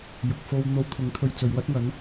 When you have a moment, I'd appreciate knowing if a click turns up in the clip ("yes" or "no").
no